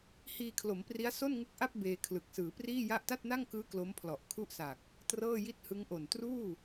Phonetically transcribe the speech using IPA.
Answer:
h iː˧ kʰ l o˩˦ m p r i˦˥ a̯ s o˥˩ n ŋ ɯ˦˥ k̚ ʔ a˥˩ p̚ b eː˧ kʰ l ɯ˨˩ k̚ s ɯː˩˦ p r iː˥˩ j a˥˩ ʔ t a˥˩ t̚ n a˥˩ ŋ k ɯː˦˥ k l o˦˥ m pʰ l ɔ˨˩ ʔ kʰ u˥˩ ʔ s a˨˩ k̚ | t r ɤː˥˩ j i˥˩ t̚ h ɯ˦˥ ŋ ʔ o˨˩ n t r uː˥˩

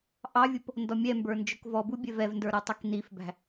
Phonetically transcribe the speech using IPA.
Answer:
ʔ ɑ vʲ ʊ p | n d ɔ mʲ ɛ m b ə˞ n d͡ʒ ʊ k v ɔ b u bʲ ɛ v ɛ v n d ə˞ ɾ ɔ tˤ ə k n i f b æ̤

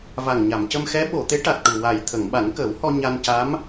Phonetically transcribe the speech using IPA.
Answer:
v a˨˩ ŋ ɲ a˨˩˨ m c ə˧ m x ɛ˧˥ ɓ o˨˩˨ t̪ e˧˥ ʈ a˨˩ t̚ ʈ u˨˩ w a˨˩ j t̪ʰ ə˨˩˨ ŋ ɓ a˨˩˦ n k əː˨˩˦ w h ɔ˧ ɲ a˧ n c a˧˥ m

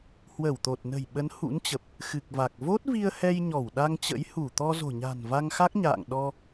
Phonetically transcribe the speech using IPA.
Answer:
h w ə˧˩ w t̪ o˨˩ t̚ n ə̤˨˩ j ɓ ə˨˦ n h ṵ˧˥ n t͡ɕ ə˨˩ p̚ | x ɨ˨˩ k̚ v a˨˩ k̚ v o˦˥ t̚ v i˧ ə̯ h ɛ˧ j ɲ ɔ˧˩ w ɗ a˧ ŋ t͡ɕ ə̰˧˥ j h u˧˩ t̪ ɔ˧ z o̤˨˩ ɲ a̤˨˩ n v a˧ ŋ x a˦˥ k̚ ɲ a̰ː˧˨ ŋ ɗ ɔ˧

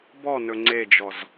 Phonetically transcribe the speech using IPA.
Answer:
b ɔ n ɵ ŋ͡ǀ e d͡ʒ ɔ z

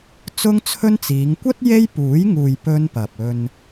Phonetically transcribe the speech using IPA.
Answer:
t͡s ʊ˥ ŋ t͡sʰ ɵ˥ n t͡s iː˨˧ ŋ kʷ ɐ˥ t̚ j e˥ j p uː˨˥ j ŋ uː˨ j p ɵ˥ n p ɐ˨ p̚ ɵ˧ n

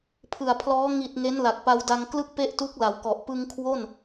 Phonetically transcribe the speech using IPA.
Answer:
pʰ ɯ˨˩ a̯ pʰ l ɔː˦˥ ŋ i˨˩ t̚ ŋ e˦˥ n l a˨˩ k̚ p a˧ w d a˧ ŋ k l ɯ˥˩ k̚ p e˥˩ ʔ t u˦˥ k̚ l a˩˦ w k ɔ˨˩ ʔ p ɯ˧ ŋ kʰ w o˥˩ n

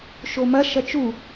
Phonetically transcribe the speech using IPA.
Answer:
ʃ o m ɐ ʃ ɐ t͡ʃ u

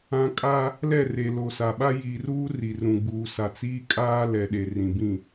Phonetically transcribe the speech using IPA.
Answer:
ã˨ kʼ a˦ | l ɛ˦˨ r e˨ l o˨ s a˨ ɓ a˦ j iː˨ r uː˦ r i˨ r ũ˨ ɡ͡b uː˨ s a˨ t͡s iː˦ kʼ aː˦ l ɛ˨ ɗ e˨ r ĩ˨ b ĩ˦˨

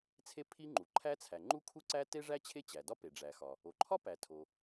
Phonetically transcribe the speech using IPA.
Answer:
t͡sʰ e˥ pʰ i˥ ŋ͡ǃ u˩ ǃʰ æ˥ t͡sʰ æ˩ ŋ͡ǃ u˥ kʰ u˥ ǀ æ˥ t e˥ ʐ æ˥ t͡ɕʰ e˥ t͡ɕ æ˩ d ɒ˥ p e˩ ɖ͡ʐ æ˩ x ɒ˩ | o˩ ǃʰ ɒ˥ p æ˩ tʰ o˩

